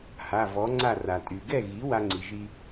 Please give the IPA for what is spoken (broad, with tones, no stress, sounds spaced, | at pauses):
h a˩˧˩ v ɔ˩˥ ŋ͡ǀ a˥˨ r a˩ tʼ y˩ ɡ ɛ˥˨ ɣ i˩˥ w a˥ ŋ͡ǀ i˩ ʒ i˥